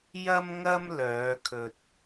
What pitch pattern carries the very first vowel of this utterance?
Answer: high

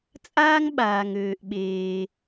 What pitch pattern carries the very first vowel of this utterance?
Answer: high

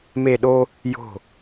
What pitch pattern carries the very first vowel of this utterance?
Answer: falling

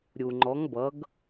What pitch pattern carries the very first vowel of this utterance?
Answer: low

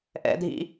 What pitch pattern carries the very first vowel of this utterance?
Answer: high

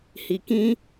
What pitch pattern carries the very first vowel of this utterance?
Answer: low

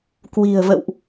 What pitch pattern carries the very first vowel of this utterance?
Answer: low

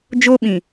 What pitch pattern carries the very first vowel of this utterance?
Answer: high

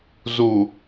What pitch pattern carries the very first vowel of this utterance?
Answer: low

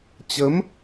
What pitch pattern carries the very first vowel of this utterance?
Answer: rising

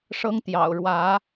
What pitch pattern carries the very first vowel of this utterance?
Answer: high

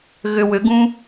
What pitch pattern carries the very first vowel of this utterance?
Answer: low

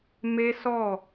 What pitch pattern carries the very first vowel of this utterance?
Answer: high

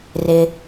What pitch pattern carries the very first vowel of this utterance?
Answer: low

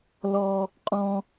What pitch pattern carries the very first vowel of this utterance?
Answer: high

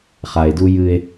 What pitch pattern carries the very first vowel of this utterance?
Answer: low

